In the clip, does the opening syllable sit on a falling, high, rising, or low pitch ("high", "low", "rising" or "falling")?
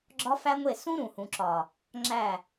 high